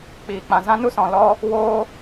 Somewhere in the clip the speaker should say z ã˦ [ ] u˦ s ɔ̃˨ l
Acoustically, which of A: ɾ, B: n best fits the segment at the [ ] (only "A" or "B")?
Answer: B